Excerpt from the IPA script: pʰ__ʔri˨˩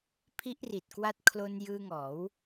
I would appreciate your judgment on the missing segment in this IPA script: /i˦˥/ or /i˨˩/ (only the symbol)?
i˦˥